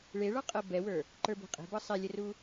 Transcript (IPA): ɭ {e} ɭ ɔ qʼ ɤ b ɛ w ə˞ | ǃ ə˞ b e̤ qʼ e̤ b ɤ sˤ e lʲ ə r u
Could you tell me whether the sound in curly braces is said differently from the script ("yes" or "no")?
no